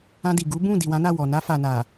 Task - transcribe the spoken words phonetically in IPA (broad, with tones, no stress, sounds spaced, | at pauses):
ã˧ d i˨ ɡ u˨˦ b ũ˦˨ d i˨ w ã˨˦ n a˦˨ w ɔ˨ n a˧ f a˨ n a˨